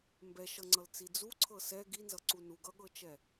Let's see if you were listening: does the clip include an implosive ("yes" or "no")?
yes